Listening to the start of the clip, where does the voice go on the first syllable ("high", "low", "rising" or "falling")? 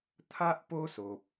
high